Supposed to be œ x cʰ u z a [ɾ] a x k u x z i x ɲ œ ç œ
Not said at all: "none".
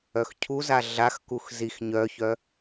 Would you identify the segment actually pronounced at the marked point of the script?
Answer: ɮ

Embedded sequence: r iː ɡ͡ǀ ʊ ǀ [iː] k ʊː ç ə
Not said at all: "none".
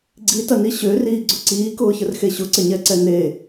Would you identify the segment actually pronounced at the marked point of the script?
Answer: iː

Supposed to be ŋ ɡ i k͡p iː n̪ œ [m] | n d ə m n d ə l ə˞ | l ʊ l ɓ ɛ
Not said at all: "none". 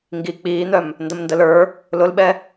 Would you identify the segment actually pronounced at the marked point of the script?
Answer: m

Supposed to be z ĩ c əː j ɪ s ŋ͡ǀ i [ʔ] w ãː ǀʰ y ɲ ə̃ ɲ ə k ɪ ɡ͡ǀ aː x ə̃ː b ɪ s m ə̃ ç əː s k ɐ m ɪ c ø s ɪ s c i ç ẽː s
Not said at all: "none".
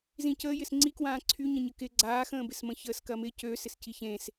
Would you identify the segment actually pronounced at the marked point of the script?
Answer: k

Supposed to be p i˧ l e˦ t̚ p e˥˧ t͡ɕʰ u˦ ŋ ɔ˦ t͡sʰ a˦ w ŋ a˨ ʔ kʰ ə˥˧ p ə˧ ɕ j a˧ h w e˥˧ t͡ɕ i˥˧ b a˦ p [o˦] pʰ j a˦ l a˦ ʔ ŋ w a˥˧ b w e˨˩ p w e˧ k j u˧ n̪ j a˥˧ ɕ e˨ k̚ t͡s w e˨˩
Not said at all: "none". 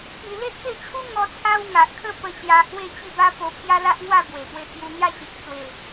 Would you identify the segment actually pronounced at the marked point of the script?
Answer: o˧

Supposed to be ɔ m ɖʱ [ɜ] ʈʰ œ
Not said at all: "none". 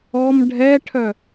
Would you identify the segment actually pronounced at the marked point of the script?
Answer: ɛ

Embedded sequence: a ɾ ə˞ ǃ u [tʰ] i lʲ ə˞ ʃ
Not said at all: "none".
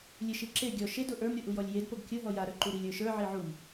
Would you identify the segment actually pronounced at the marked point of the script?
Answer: ɾ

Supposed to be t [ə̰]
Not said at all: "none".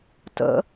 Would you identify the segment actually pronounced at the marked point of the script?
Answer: ə̰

